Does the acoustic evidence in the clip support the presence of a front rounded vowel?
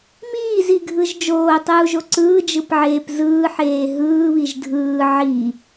no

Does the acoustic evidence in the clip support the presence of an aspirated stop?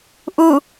no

